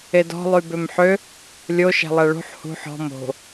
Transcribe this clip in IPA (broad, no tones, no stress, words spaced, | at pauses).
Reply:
edɔ̤ lˠybømħø | lʲo ʃæ̤lˠæɭṳħ hṳ ħɔ̤ mo̤